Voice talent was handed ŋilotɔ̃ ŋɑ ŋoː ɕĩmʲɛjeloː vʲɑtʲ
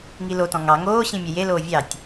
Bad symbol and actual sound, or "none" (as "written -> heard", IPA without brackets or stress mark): none